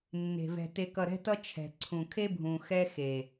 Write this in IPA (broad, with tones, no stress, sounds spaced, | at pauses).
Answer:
nː e̤˨ v ɛ̤˨ t e˨ k ʌ˨ ɾ ɛ̤˦ t ʌ˦ t͡ʃʰ ɛ̤˨ ǀʰ ũ˨ kʰ e˦ bʱ ũ˨ x ɛ˦ x e˨